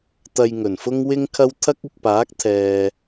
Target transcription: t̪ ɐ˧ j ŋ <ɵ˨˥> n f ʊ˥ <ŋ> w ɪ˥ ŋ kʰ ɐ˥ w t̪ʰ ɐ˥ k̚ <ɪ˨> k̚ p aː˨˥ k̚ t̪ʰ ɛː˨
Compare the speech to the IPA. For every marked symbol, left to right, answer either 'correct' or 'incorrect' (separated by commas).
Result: incorrect, correct, correct